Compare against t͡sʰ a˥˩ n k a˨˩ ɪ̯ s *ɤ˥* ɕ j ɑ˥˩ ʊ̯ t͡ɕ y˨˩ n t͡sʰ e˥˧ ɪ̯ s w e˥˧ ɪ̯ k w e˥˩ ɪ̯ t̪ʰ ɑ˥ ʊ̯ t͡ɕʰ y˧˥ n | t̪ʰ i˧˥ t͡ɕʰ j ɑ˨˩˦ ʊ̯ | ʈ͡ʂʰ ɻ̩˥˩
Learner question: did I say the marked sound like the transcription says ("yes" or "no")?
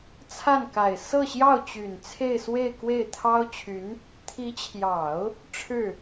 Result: no